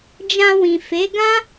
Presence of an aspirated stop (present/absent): absent